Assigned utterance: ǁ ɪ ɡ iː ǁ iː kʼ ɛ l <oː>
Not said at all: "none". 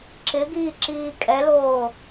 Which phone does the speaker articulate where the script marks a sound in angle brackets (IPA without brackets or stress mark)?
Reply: oː